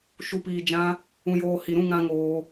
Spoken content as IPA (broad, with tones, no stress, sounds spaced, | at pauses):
ʃ u˨ p iː˨ d͡ʒ ã˧ | ũ˨ j oː˨ h i˨ ɾ ũ˦˨ ŋ ã˧ ŋ oː˧